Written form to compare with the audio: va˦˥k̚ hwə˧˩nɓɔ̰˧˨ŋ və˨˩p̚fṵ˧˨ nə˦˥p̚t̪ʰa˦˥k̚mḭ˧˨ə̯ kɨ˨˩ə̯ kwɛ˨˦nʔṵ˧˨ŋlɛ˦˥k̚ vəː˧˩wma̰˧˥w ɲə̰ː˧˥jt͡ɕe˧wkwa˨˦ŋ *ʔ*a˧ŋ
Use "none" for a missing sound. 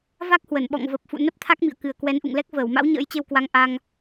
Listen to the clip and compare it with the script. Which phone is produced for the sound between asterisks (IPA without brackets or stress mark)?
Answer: ʔ